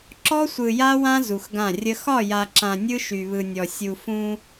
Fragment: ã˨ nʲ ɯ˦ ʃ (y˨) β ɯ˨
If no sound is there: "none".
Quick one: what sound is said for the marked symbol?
y˨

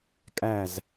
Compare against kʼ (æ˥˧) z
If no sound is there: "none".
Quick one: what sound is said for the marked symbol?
æ˧˩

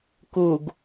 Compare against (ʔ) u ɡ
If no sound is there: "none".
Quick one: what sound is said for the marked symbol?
k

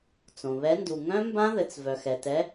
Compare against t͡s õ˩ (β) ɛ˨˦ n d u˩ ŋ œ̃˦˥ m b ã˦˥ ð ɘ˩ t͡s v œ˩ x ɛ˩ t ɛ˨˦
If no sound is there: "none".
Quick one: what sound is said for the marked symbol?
β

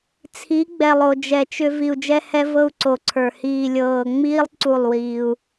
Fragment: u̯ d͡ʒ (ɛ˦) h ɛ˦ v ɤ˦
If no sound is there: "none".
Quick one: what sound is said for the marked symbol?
ɛ˦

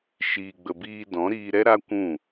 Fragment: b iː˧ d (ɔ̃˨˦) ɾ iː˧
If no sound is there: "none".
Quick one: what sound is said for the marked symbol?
ɔ̃˨˦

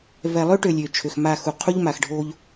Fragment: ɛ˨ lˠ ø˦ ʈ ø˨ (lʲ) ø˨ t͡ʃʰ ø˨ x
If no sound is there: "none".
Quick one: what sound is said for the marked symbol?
lʲ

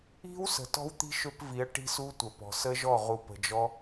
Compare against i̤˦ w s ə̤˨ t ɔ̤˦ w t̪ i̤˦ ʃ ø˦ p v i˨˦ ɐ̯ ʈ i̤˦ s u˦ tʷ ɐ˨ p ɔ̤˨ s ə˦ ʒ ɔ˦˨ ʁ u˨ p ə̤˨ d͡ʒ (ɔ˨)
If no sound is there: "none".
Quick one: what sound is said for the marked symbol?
ɔ˦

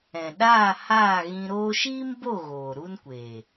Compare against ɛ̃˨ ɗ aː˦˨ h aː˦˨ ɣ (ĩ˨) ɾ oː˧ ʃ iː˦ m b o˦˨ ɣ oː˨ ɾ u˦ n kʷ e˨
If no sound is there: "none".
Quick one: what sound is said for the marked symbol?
ĩ˧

